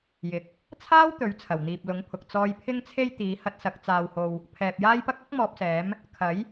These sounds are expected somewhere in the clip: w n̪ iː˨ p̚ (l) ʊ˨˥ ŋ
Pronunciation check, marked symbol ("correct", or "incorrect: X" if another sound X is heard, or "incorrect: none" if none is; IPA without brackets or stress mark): correct